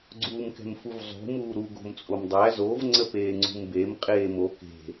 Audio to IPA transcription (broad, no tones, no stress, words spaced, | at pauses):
ɡ͡ǀuːmkɛ̤mfuvzˤṳ muːɾu ɡo̤mt͡sʼomdˤæ zov ŋ͡ǀəpeːŋ͡ǀṳmbem qʼeːmo ke̤